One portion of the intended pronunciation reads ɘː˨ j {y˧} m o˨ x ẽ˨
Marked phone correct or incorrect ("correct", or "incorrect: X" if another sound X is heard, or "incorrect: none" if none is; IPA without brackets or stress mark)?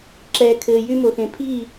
correct